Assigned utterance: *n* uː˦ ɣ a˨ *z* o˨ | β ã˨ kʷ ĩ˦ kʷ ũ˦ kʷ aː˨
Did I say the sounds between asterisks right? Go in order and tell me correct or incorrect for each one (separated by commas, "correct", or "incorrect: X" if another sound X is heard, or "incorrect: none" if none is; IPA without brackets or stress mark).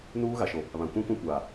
correct, incorrect: ʃ